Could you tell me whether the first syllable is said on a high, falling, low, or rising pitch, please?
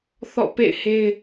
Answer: falling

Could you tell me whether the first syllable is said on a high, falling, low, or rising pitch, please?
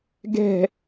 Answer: falling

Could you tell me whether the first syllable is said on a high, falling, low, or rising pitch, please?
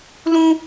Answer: high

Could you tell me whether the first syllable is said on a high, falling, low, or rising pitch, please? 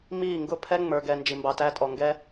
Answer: falling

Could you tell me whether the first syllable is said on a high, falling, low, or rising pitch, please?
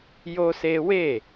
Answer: high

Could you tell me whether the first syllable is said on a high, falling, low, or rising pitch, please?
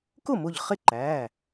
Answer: falling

